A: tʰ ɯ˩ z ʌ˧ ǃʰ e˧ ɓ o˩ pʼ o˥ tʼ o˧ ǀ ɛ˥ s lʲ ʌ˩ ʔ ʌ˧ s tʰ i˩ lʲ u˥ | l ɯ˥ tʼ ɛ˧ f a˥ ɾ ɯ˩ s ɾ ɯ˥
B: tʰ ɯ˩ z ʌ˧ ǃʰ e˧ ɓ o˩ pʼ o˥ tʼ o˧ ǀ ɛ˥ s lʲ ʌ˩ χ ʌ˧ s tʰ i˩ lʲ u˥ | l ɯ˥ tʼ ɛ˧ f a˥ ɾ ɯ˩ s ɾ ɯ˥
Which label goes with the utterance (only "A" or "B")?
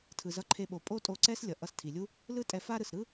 A